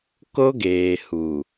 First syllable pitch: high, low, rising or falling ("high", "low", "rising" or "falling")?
high